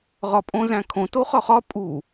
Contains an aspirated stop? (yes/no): yes